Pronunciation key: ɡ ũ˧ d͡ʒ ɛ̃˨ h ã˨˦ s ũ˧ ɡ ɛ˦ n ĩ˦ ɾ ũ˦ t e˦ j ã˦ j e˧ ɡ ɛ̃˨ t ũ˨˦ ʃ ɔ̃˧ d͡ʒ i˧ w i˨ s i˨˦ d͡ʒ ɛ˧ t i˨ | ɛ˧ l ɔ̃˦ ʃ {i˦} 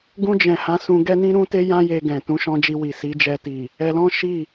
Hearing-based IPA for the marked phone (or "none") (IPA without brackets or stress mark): i˦˨